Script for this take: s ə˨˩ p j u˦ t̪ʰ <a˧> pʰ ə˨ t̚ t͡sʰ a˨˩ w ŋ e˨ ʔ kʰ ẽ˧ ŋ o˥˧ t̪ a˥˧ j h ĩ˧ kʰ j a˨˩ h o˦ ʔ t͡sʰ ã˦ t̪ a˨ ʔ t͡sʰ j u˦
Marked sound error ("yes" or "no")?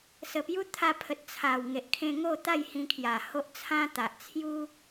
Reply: no